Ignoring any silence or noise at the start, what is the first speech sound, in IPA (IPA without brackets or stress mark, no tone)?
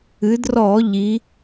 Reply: ɨ